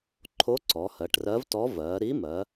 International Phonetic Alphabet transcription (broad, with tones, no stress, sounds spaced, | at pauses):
ǃʰ o˧˥ ǀ ɔ˩˧ h ɜ˩˧ ʈ r ɜ˧˥ v t ɔ˧˥ v ɜ˩˧ ɾ i˧˥ m ɜ˩˧